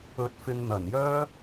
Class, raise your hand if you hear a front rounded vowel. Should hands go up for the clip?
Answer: yes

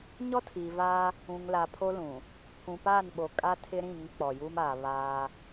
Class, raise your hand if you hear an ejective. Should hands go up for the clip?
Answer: yes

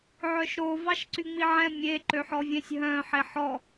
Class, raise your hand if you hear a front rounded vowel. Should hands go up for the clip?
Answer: yes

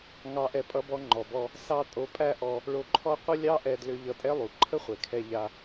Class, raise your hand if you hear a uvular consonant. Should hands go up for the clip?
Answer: yes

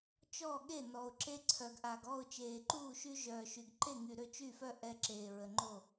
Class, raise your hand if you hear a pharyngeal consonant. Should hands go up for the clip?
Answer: no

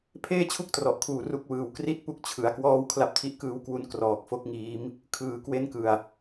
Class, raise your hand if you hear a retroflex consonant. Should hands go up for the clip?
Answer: no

